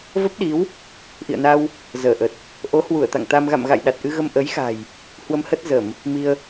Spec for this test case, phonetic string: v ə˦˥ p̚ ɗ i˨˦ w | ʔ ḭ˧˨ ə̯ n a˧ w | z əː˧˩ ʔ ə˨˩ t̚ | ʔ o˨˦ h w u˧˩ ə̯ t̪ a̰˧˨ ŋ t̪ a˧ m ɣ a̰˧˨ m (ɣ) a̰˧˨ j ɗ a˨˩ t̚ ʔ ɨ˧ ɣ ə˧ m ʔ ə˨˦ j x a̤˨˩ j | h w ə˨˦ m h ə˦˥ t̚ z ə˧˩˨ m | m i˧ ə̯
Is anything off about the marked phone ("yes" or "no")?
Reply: no